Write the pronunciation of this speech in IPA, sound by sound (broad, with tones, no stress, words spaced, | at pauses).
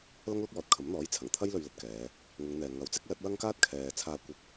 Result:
lɐ˥ŋlʊ˥k̚wɔː˨t̚kʰɐ˨˥m n̪ɔː˨˥jt͡sʰɐ˨˩ŋ t̪ʰɐ˥jlɵ˧ɥ lɐ˨t̚kɛː˨˧ | ŋʊ˨˧ŋn̪ɛː˨ ŋɐ˨˥w t͡sɪ˥k̚lɐ˨˥t̚ wɐ˥ŋkaː˥t̚ kʰɛː˨ t͡sʰaː˧kʷɪ˧k̚